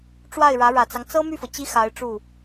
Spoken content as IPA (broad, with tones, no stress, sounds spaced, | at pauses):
ʈ͡ʂ w a˥˩ ɪ̯ ɻ ä˧˥ ɻ ä˨˩ t͡s ɑ˦ ŋ t͡s ɤ˥ m y˥˩ f ɤ˩ t͡ɕ i˥ x a˧˥ ɪ̯ ʈ͡ʂ u˥˩